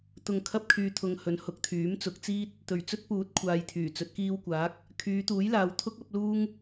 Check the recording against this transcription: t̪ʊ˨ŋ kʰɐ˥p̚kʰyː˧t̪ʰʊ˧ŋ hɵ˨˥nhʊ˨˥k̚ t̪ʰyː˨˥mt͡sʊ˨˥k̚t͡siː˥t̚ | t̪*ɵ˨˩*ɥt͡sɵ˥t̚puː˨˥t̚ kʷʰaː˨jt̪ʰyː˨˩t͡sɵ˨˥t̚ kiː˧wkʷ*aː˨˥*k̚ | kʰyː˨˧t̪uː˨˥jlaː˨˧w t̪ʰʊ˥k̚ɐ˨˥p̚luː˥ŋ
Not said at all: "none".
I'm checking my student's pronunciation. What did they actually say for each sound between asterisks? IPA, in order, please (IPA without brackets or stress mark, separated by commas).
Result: ɵ˨˩, aː˨˥